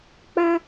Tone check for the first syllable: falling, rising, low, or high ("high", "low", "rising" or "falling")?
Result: high